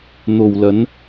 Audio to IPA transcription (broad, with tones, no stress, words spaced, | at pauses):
n̪o˨wlɐ˨˧n